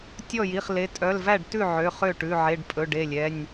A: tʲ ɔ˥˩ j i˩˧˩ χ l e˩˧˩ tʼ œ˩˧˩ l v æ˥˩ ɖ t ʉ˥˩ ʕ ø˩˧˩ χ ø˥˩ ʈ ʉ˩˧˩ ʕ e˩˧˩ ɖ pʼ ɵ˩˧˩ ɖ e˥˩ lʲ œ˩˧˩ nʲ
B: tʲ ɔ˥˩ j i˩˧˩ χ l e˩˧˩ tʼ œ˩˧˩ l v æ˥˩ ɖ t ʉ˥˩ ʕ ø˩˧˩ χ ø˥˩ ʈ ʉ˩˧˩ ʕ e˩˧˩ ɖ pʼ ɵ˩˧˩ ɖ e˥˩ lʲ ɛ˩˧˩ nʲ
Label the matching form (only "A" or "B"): B